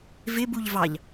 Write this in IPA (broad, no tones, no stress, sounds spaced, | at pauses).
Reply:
v ɪ b u ʎ v ɑ ʎ